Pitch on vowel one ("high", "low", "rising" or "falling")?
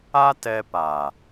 high